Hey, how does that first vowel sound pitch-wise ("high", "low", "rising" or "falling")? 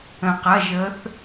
low